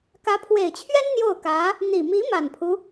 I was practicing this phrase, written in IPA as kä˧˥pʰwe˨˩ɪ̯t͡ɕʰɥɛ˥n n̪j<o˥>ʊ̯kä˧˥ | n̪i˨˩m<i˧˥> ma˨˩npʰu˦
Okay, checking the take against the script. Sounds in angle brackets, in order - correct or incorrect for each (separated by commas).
incorrect, correct